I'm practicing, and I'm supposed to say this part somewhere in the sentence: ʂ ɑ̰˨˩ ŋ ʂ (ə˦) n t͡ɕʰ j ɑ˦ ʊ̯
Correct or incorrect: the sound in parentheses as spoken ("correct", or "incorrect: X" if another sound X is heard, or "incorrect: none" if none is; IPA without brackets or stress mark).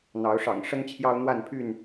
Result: correct